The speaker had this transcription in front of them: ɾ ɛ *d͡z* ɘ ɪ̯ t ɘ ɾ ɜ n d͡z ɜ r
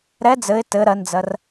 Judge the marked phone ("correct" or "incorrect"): correct